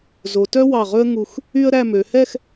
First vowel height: mid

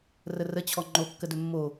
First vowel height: mid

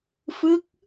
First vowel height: high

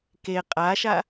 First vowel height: mid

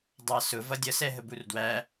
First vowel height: low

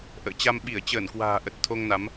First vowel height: mid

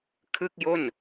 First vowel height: high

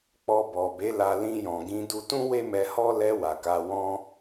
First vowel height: mid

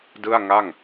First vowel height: high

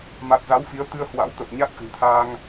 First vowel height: low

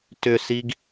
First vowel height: high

